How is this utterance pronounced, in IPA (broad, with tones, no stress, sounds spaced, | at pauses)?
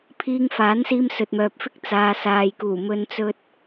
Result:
pʰ iː˧ ŋ f aː˨˥ n s iː˧ m s ɵ˨ t̚ m œː˨ p̚ f ɪ˥ k̚ t͡s aː˧ s aː˨ j k uː˨˩ m ɵ˧ n t͡s ɵ˧ t̚